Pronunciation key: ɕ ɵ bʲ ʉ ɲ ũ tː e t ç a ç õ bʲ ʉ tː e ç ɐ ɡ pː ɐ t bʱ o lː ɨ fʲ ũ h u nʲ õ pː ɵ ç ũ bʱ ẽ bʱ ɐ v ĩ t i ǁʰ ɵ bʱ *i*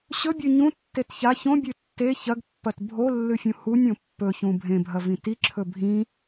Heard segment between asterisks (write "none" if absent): ĩ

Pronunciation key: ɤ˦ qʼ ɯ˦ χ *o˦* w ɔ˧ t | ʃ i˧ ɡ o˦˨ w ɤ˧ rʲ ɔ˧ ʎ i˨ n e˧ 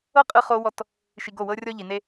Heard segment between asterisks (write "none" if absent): o˦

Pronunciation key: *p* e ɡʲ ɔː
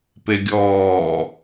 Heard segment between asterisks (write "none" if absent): p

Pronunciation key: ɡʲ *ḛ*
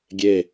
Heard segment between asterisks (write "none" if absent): e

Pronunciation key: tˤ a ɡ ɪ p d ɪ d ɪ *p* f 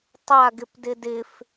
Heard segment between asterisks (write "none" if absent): none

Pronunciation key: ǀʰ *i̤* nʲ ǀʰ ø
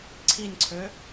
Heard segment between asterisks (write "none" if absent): i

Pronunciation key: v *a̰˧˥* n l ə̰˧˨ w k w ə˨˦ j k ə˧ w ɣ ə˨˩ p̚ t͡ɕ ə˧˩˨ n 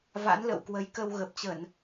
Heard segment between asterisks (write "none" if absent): a̰˧˥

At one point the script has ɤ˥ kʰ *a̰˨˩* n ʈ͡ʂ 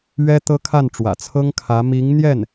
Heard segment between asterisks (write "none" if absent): a˥˩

